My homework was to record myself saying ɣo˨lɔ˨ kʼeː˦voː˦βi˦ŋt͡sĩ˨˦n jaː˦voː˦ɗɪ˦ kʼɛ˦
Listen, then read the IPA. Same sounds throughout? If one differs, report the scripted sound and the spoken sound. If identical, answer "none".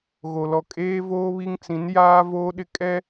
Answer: none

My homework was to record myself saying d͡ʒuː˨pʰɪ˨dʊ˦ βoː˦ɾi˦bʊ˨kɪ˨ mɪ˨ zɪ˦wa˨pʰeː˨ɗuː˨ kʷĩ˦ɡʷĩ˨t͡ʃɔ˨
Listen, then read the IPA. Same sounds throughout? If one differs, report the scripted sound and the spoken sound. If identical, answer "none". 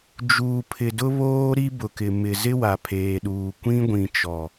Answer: none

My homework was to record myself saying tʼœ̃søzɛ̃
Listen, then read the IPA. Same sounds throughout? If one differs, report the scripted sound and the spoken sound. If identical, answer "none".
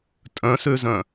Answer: ɛ̃ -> œ̃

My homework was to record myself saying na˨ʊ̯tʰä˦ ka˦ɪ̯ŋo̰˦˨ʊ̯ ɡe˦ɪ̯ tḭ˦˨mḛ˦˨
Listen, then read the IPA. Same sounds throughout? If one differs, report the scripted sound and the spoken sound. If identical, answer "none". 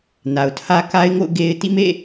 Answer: none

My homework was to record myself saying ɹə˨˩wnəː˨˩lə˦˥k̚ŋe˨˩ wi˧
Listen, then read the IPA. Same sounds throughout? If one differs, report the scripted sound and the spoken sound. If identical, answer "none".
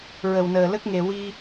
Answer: none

